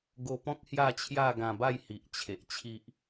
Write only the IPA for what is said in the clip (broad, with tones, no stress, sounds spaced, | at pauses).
ɡ o˧ p ɔ̃˦ k̚ h j a˥˧ t͡ɕʰ j a˥˧ ɡ ã˧ b a˥˧ j h i˨ ʔ t͡ɕʰ e˨ ʔ t͡ɕʰ i˦ ʔ